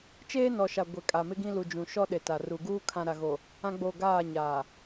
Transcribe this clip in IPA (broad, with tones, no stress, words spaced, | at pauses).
t͡ʃeː˦nɔ˨ʃa˨ ɡʷɛ˨kʼa˨ mɪ˦ɡĩ˦ lu˨ d͡ʒũ˨ʃɔ˦ɗe˨ ta˨ru˨ɡuː˦ kʰã˨ɾa˨ɣo˨ | ã˦ɡ͡bo˦˨ ɡaː˦˨ɲaː˨